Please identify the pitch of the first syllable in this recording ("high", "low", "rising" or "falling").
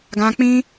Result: high